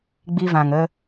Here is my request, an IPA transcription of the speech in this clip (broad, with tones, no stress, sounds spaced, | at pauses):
ɡ͡b i˧ v ã˨ ŋ ə˧